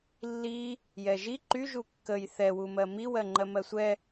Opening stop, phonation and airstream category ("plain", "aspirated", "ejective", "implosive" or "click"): click